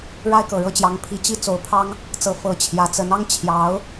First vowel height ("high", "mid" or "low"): low